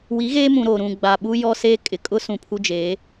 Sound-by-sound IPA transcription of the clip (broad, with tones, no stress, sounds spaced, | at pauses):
w i˨˦ ɣ eː˦ m ũ˨ ɾ o˨ ɾ ũ˨ ɡ͡b a˨ ɓ u˦ j ɔ˦ s eː˦ kʼ ɪ˨ kʼ ʊ˦ s ũ˨ pʰ u˦ d͡ʒ e˨˦